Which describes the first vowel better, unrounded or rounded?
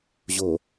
rounded